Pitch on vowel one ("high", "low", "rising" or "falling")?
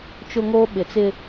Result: high